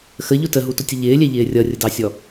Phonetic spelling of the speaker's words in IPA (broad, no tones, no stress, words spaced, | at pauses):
xəʎʊ təɦutʊtʲə ʎɪːlʲɛʎɪː rʲʌrʲədɑsʲɔ